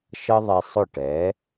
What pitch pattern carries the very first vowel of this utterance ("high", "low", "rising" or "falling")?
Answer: high